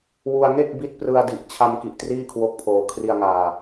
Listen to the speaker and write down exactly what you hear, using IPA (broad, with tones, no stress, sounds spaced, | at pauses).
w u˧ a̯ ŋ e˥˩ k̚ b i˦˥ t̚ p r ɯ˧ a̯ d i˨˩ ʔ t͡ɕʰ a˧ m k i˨˩ ʔ t r iː˥˩ kʰ w o˦˥ k̚ pʰ oː˧ kʰ r i˧ a̯ ŋ aː˧